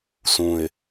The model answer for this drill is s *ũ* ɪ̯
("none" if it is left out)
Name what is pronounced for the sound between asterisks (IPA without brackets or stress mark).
ũ